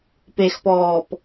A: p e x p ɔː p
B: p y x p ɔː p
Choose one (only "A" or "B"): A